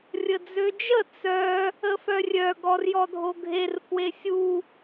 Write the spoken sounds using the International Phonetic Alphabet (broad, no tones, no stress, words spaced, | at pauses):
rʲəd͡zød͡ʒə t͡sœ | əfœrʲœ ɡɔrjɔdʱoɡʱer fwesʲu